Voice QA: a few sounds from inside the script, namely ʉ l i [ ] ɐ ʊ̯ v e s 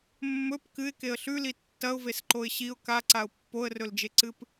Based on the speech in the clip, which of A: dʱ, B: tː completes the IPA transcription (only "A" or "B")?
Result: B